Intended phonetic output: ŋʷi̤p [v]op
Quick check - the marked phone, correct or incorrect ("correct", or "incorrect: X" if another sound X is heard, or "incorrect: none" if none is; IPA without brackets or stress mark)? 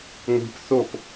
incorrect: θ